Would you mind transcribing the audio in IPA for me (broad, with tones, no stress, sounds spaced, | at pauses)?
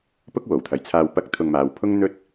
p ʊ˥ k̚ w o˨˩ w t̪ʰ ɐ˨ j t͡sʰ aː˧ w p ɐ˧ k̚ t̪ʰ ʊ˧ ŋ m aː˨˧ w pʰ ʊ˥ ŋ n̪ ɵ˥ t̚